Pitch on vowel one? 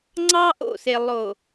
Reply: high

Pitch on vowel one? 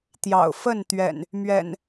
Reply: low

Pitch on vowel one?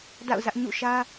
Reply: falling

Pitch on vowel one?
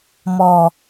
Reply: low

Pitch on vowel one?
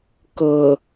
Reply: low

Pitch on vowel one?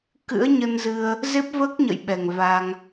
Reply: rising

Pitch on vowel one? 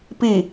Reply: falling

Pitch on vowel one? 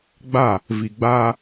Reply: falling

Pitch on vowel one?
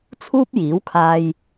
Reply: high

